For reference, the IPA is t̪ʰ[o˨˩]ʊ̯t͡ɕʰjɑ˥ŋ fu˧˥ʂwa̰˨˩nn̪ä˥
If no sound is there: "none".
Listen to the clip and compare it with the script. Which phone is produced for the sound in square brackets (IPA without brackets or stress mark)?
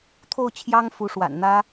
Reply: o˥˩